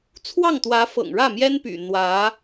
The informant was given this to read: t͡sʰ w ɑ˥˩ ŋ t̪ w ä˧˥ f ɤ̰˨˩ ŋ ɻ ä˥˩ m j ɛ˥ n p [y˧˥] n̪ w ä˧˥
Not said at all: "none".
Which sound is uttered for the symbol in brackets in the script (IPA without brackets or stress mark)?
y̰˨˩